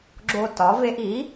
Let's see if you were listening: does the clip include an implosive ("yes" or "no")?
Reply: no